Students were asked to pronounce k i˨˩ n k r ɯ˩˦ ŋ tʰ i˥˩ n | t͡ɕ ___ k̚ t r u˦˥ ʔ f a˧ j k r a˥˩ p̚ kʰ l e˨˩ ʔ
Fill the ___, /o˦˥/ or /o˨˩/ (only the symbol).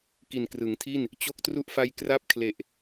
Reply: o˦˥